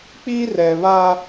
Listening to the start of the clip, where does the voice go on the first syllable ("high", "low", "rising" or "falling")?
high